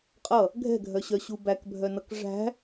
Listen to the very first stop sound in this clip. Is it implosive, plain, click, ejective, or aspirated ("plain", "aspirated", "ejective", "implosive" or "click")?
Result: ejective